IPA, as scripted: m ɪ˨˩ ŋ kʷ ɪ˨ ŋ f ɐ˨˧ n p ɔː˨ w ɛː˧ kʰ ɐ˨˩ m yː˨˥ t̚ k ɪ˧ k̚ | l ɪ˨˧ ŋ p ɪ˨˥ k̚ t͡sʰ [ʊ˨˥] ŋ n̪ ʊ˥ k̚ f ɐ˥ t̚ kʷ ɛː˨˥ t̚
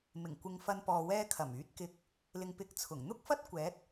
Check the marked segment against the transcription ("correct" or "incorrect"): incorrect